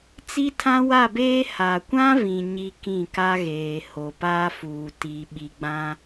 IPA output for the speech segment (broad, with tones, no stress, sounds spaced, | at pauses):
t͡s i˦ tʰ ã˦ w a˦˨ b eː˦ h a˨ kʷ ã˦ v ĩ˨ ɲ i˦ k ĩ˦˨ k a˦ ɣ eː˨ h o˨ p aː˦ f uː˨ t i˨ ɓ i˨ ɡ͡b ã˦